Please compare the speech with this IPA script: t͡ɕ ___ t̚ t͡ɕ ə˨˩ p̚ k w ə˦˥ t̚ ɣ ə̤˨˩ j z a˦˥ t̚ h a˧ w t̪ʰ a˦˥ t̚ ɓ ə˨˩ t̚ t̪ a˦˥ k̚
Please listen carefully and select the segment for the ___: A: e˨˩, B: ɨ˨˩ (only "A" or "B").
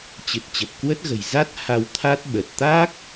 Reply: B